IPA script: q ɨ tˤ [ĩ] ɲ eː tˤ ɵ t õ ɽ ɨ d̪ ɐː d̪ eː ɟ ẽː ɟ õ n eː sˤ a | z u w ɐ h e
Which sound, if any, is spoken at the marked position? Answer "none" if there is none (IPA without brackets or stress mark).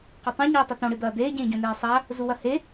ĩ